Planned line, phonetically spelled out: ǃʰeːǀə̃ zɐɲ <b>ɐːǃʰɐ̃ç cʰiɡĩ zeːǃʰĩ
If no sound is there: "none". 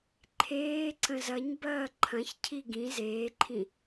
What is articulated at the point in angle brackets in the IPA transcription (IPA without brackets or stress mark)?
b